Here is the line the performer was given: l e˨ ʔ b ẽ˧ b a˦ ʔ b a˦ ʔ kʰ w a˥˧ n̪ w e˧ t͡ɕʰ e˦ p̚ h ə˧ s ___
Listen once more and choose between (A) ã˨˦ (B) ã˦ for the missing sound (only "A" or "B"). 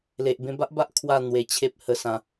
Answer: A